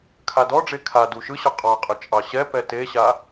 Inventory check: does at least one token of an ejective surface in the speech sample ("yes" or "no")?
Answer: yes